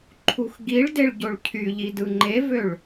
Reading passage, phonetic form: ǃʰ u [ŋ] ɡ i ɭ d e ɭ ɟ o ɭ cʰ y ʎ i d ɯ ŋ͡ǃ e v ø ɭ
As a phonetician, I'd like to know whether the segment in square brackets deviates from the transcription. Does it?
yes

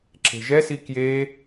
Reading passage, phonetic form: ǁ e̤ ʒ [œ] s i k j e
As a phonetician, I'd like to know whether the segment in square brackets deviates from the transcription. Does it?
yes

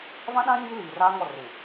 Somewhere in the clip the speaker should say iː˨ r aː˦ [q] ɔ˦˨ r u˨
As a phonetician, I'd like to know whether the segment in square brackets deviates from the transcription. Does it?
yes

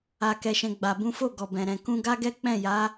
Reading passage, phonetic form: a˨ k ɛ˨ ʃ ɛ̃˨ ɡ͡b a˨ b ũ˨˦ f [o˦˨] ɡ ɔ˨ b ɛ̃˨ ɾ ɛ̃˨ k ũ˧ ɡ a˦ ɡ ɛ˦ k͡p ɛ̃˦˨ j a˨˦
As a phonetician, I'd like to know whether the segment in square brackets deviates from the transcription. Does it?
no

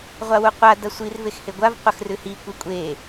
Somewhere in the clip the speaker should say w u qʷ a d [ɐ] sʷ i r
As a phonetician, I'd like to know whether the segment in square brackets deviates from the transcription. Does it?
no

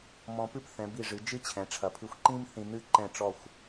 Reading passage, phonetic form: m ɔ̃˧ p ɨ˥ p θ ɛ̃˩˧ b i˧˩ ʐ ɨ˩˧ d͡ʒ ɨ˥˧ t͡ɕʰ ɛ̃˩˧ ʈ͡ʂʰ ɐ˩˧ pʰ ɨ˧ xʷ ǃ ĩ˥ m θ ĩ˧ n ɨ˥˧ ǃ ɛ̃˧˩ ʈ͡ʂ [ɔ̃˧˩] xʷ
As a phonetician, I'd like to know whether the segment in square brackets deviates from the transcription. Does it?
yes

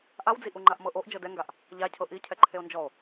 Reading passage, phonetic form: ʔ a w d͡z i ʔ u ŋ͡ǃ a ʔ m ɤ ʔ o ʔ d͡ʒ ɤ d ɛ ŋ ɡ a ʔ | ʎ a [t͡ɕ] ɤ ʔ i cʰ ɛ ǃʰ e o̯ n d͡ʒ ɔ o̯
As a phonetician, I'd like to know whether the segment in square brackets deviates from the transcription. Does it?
yes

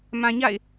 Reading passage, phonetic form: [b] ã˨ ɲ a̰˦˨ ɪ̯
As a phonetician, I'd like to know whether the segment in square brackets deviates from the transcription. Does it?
yes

